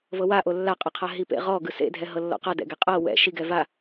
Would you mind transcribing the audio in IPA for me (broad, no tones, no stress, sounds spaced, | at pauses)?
v ɤ w a ʔ o lː a qʼ ɤ qʰ a ɦ i p ḛ ʁ ɔ ɡ ɯ s ḛ dʱ ɛ ɦ ɤ lː ɔ̰ q a d ɛ̰ ɡ e qʼ ɤ w ɛ̰ ʃ i ɡ ɛ v a